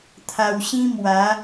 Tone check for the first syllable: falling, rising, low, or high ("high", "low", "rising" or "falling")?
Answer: low